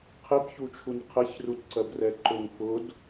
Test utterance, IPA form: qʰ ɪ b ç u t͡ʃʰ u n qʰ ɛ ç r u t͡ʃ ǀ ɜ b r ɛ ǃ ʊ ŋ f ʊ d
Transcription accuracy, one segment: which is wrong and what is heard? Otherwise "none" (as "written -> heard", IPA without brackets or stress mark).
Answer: t͡ʃ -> t